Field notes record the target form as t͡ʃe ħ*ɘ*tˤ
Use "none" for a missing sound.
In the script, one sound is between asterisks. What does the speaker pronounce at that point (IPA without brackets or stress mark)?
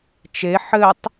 ɘ